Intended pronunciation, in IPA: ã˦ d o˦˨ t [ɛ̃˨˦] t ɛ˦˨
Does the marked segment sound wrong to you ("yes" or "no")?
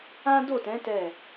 no